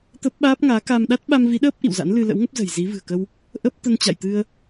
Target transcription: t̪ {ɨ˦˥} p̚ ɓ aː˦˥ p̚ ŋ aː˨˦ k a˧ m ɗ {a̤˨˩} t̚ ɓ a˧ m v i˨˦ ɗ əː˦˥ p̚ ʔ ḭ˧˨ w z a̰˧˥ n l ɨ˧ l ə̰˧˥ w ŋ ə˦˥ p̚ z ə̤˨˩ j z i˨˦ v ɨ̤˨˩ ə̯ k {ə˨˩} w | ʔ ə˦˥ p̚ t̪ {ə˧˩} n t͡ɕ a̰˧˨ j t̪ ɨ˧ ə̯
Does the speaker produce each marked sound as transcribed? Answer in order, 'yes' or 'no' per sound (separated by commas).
no, no, no, no